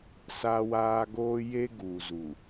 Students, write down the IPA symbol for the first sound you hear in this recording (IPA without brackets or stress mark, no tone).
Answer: s